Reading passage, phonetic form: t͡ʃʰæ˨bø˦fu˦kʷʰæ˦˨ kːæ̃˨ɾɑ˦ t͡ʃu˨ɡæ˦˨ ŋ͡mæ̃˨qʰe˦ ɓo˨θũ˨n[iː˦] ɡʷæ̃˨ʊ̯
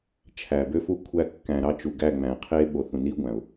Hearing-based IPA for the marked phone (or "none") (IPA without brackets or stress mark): i˦